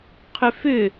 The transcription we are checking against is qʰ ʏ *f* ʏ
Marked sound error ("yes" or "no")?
no